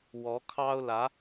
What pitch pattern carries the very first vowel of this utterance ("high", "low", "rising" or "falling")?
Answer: rising